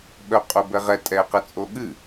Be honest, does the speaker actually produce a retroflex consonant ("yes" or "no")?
no